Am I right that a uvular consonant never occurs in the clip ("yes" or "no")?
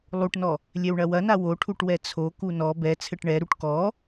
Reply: yes